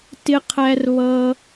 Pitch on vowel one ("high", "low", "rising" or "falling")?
high